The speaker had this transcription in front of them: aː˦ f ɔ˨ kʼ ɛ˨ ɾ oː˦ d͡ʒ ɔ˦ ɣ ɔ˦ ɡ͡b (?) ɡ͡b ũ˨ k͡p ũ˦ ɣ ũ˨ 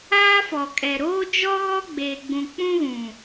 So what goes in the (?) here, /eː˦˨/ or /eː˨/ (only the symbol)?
eː˨